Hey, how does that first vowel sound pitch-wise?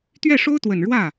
falling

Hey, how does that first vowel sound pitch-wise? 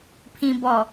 low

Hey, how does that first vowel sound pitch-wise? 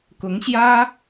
rising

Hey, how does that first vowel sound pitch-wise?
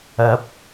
rising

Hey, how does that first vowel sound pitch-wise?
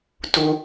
high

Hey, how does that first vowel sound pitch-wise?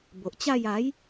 low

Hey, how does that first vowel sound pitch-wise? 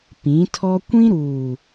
rising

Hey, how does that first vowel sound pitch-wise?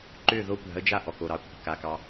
falling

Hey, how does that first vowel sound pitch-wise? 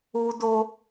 high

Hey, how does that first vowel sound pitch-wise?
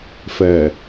low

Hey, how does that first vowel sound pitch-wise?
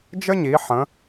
high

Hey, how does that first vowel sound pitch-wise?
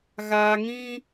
low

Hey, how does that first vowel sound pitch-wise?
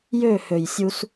falling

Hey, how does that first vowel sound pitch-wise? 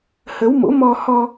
rising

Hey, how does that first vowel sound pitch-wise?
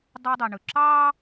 high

